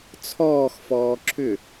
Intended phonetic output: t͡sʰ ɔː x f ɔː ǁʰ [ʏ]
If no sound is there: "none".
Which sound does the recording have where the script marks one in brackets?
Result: ʏ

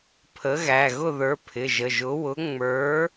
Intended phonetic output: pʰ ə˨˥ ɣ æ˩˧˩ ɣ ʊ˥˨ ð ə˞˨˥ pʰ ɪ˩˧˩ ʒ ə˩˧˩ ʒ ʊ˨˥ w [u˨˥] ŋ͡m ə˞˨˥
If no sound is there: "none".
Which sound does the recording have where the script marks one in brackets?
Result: ʊ˨˥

